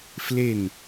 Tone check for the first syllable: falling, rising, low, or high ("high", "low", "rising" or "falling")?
falling